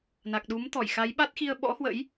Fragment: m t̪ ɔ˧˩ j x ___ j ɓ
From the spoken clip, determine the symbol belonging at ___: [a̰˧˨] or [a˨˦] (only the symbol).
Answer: a˨˦